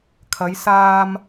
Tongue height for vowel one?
low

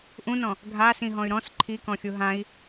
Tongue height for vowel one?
high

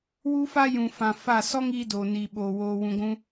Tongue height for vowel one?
high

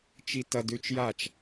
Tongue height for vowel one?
high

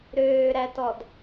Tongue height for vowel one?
mid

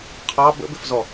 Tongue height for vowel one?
low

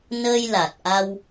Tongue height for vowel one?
mid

